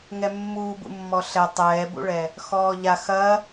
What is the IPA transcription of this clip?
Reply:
ŋ ɛ mː uː b ṵ mː ɔ ɬ ɛ tˤ ɛː b ṵ ɭ ɛ | x ɔː ʎ a x ɐ

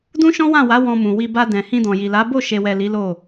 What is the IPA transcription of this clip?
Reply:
d ũ˦ ʃ ɔ̃˦ w ã˦˨ w a˨˦ w ɔ̃˧ m ũ˨ w i˧ b a˧ d ɛ̃˨ h ĩ˧ d ɔ̃˨ j i˨ l a˨˦ b o˦˨ ʃ e˨ w ɛ˨ l i˨˦ l o˦˨

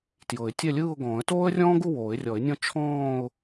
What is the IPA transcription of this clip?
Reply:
t j ɤ˨˩˦ ɪ̯ tʲ ɛ˥˧ lʲ ɯː˥˧ ʊ̯ ɡ ɔ̃ː˨˩˦ ə̯ t oː˥ ə̯ rʲ ɔ̃ː˥ ɡ u˥˧ w oː˨˩˦ ɪ̯ rʲ ɔ˨˩˦ ɪ̯ nʲ ɔ̃˥˧ t͡ʃʰ ɔ̃ː˥˧ ʊ̯

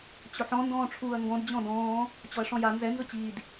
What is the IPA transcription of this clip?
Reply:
t͡ɕ ʊ ħ ɔ̃ n d ɔ̃ː ʈ͡ʂʰ uː ɐ̯ ŋ ɡ ɔ̃ d d͡ʑ ɔ̃ d ɔ̃ː | t͡ɕ ɔ ɐ̯ ʂ ɔ̃ j a n z ɛ n z ʊ t͡ɕ iː d

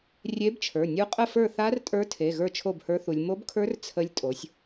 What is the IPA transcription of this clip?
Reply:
rʲ e˧˥ b t͡ʃʰ ə˞˩˧˩ nʲ u˧˥ qʼ ə˥˩ f ə˞˥˩ θ a˧˥ r tʼ ə˞˧˥ tʰ e˩˧˩ ɣ ə˞˥˩ t͡ʃʰ o˥˩ b h ə˞˧˥ θ u˩˧ lʲ m o˧˥ b kʰ ə˞˧˥ r t͡sʰ ə˧˥ lʲ tʼ o˩˧ sʲ

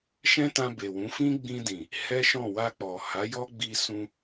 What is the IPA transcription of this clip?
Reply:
ʃ ɛ̃˦ t ã˧ b e˨ w ũ˨˦ f ĩ˦ ɡ͡b ĩ˧ d ĩ˨ | h ɛ˦ ʃ ɔ̃˦˨ w a˧ k͡p ɔ˨ h a˨˦ j ɔ˦ ɡ͡b i˧ s ũ˧

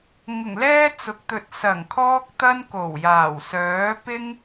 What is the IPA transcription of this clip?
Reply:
ŋ ʊ˨˩ ŋ l ɛː˥ t͡s ʊ˨ k̚ t̪ ɵ˧ t̚ s ɐ˨˩ ŋ kʰ ɔː˥ k̚ t̪ ɐ˥ n k o˨˩ w j aː˨˩ w s œː˨˥ p ɪ˥ ŋ

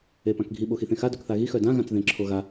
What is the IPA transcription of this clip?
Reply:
e p ã k ɡʱ i ɓ o x i θ ẽ x a d œ k θ a ɣ i x œ d ã ɣ ã t͡s ð ẽ ǁʰ o ɣ a

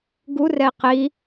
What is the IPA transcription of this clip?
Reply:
ɡ u r ɛ i̯ q i

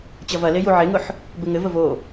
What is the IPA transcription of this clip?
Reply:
t͡ɕ ɐ v ɐ l e j u ʕ e ŋ ʊ ħ | b ɘ ŋ ɘ v ə v o

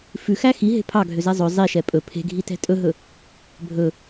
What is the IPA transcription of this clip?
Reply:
f ʉ x æ x i ɦ e̤ pʰ ɑ ɡʱ ø z ɛ zˤ ɵ zˤ i ʃ ɛ pʼ ɵ pʰ e̤ ɡʱ i t ɛ̤ tʼ ɵ ɦ ɵ | bʱ ɵ

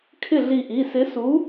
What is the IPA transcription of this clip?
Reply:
kʰ ɪ˥˩ ɮ i˧˩ ʔ i˩˧˩ s ɪ˨˥ s u˨˥

